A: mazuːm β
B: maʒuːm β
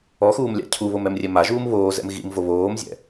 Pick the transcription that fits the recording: B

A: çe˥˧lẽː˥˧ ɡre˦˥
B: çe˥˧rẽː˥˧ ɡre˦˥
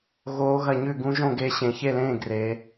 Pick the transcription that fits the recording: A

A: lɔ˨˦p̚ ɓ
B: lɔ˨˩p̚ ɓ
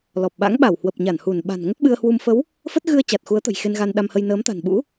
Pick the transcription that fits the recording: B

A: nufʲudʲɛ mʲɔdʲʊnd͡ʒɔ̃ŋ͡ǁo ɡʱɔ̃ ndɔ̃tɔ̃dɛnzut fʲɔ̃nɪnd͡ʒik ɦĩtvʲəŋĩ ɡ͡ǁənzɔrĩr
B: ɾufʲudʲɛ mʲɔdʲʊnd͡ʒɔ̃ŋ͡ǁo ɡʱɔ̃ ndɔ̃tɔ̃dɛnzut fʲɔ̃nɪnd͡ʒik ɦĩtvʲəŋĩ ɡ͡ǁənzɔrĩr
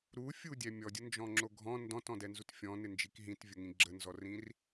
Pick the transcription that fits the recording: B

